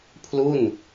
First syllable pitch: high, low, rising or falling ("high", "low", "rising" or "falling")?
falling